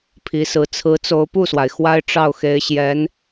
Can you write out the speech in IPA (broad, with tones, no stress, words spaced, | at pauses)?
pʰi˧˥sɹ̩˧˥ t͡sʰɹ̩˧˥t͡so˧˥ʊ̯pu˥˩swa˩ɪ̯ xwa˥ɪ̯ʈ͡ʂɑ˥˩ʊ̯xe˧˥ɪ̯ɕjɛ˧˥n